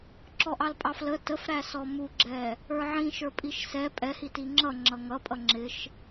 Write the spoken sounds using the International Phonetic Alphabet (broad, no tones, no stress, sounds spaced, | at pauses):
ǁ ɔ ʔ ɑ l pʼ ɑ f l ə t ə f ɾ æ s ɔ m u ɡ͡ǁ ɛ | ə˞ ʕ ĩ ʃ ə˞ pʼ i ʃ s ɛ pʼ ɛ h i t i ŋ͡ǁ ʌ ŋ͡ǁ ʌ ŋ ʌ pʼ ʌ ŋ͡ǁ ɪ ʃ